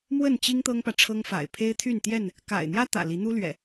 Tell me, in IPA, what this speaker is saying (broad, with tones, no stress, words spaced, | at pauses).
mwə˥˨nt͡ɕi˦ŋ t̪ɤ˦ŋpä˨ʈ͡ʂʰɤ˦ŋ fa̰˨˩ɪ̯ pʰe˦ɪ̯ t̪ʰy˥˨nt̪jɛ˥˨n | ka̰˨˩ɪ̯n̪jä˦t̪ä̰˨˩ li˨˦n̪u˦lɥɛ̰˨˩